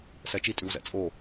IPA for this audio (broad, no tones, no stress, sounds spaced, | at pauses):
s ɛ t͡ʃ i tʼ ʉ w z ɛ̰ t͡sʼ o